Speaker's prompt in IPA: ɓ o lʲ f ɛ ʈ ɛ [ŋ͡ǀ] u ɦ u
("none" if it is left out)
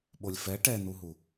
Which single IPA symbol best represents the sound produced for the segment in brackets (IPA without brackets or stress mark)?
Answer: n̪